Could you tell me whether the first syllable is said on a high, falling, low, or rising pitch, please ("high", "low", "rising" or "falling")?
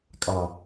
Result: low